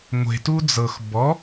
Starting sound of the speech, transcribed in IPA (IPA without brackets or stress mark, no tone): ŋʷ